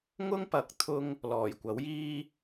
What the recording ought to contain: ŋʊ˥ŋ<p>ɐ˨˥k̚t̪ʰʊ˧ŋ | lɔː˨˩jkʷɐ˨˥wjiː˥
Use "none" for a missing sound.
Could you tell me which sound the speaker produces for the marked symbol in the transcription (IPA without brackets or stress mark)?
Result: p